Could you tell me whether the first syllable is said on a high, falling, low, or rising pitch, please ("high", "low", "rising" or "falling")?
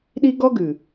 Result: high